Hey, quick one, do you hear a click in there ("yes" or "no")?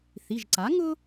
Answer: yes